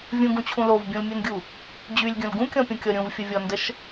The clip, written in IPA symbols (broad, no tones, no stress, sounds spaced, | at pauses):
vʲ ũ ɡ ũ t͡ɕʰ ũ l o v bʲ ũ l mʲ u n ɡʲ u | d͡ʑ y lʲ ɡʲ ũ l ɡ ũ kʲ ɔ̃ pʲ ũ kʲ ɔ ɾʲ ũ v fʲ ə vʲ ɔ n d ə ʃ